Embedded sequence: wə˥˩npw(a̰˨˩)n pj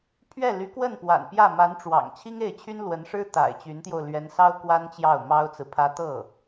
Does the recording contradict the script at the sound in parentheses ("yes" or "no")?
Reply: no